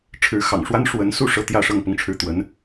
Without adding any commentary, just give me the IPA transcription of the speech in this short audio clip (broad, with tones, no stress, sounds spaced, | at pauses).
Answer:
ʈ͡ʂʰ ɻ̩˧˥ x ɑ̰˨˩ ŋ ʂ w a˥ n ʂ w ə˧˥ n s u˥˩ ʂ ɤ˥ t̪ j ä˥˧ ʂ ɤ˥˧ ŋ p ʊ˥˧ ŋ ʈ͡ʂʰ ɻ̩˥˩ t̪ w ə˧˥ n